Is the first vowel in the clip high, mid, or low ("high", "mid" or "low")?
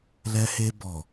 mid